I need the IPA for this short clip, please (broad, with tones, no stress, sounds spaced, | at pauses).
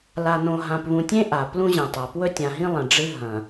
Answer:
l a˨ n õ˨ ɦ ã˨ p β ũ˨ tʲ ẽ˦ ʔ a˨ p l ũ˦ ʑ ẽ˨ tˤ a˨ p w ɵ˦ tʲ ã˨ ɦ ĩ˦ lˠ ɐ̃˨ ɖ͡ʐ ɨ˦ ɦ ɐ̃˨